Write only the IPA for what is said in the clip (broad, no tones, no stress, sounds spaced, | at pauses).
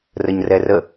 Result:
r ə ɲ r ɛ r ə